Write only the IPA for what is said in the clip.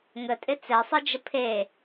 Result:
ŋətʼɪ t͡sɛsˤɨd͡ʒə pʰe

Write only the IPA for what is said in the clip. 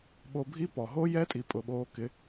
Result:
ɓo˧bʱi˦ pɔ˨ ɦoː˦jɛ˦tʼi˨ pʼʊ˨ɓoː˧kɪ˨˦

